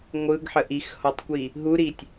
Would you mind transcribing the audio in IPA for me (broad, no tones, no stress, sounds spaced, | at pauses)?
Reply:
ŋʷ ɯ ɡ ħ ə ʔ i x h ɔ tˤ kʷ i | ɦ u ɾ i tʲ